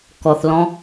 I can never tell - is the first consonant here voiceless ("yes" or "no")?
yes